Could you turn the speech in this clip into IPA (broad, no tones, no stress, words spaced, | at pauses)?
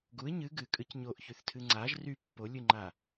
ɡuɪ̯ ɲɨ ɡɨkʼɨc ɲoʔçyθtʰɨ ŋ͡ǀaʒ ry pːolʲɨŋ͡ǃa